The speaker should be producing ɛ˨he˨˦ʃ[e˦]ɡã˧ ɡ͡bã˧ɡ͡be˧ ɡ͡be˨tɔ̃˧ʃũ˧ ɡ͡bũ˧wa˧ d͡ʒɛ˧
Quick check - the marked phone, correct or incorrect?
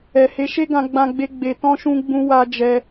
correct